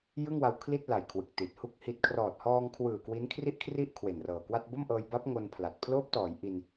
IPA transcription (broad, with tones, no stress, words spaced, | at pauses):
jɯ˥˩ŋwa˧w kʰli˥˩t̚la˨˩j kʰwɯ˨˩k̚ti˨˩t̚hu˥˩k̚hi˦˥t̚ kʰrɔː˨˩t̚hɔː˧ŋkʰwɯː˨˩ kwi˦˥nkʰri˥˩ʔkʰri˥˩ʔ kʰwe˨˩nrɤː˨˩kwa˥˩t̚ bo˥˩mʔɤː˧j ba˦˥p̚ ŋo˧n pʰla˨˩t̚ pʰloː˦˥p̚tɔː˩˦j ʔi˧n